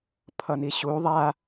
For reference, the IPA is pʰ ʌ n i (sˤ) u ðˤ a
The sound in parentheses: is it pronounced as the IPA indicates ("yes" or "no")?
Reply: no